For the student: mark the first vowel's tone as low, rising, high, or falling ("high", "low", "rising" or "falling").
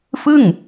falling